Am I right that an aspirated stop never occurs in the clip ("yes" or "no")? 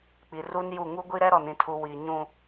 no